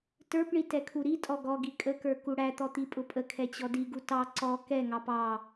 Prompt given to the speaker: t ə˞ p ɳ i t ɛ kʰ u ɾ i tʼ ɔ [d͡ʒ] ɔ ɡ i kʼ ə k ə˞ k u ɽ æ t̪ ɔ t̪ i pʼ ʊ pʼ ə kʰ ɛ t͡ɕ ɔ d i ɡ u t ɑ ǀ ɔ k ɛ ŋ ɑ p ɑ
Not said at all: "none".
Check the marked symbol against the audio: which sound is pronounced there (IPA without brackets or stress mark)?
ɡ